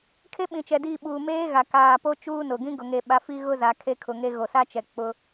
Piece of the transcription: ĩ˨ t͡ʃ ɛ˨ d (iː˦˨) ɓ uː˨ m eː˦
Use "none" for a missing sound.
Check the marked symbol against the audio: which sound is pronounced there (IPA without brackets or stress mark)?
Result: iː˦˨